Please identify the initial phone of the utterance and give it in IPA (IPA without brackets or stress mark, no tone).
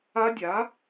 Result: a